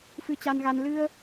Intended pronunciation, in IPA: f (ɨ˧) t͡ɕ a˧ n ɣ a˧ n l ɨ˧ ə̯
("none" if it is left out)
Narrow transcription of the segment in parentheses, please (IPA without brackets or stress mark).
ɨ˧